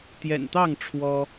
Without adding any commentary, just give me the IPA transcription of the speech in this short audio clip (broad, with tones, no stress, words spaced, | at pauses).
t̪jɛ̰˨˩nt̪ɑ˥˨ŋ ʈ͡ʂʰwɔ˦